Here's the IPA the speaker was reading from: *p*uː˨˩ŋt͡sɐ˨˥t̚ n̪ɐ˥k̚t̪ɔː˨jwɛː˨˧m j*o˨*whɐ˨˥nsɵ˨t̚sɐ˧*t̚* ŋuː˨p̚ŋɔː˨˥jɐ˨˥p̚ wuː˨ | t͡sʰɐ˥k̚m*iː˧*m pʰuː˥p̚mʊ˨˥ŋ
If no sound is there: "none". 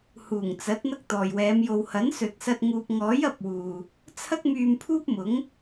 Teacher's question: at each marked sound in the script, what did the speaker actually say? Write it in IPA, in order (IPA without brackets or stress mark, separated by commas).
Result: h, o˨, t̚, yː˧